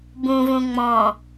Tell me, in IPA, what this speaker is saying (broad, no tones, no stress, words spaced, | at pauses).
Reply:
bũvũ ŋ͡mɔ̃